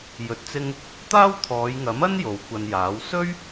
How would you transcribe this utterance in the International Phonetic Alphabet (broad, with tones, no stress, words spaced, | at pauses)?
jɵ˧t̚t͡sɪ˥ŋ | t̪aː˥wt̪ʰɔː˨˧jŋɐ˨˥mɐ˥n jo˨˧wkʷɐ˧njaː˨˥w sɵ˥ɥ